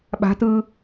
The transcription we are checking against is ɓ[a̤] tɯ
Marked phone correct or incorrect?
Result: correct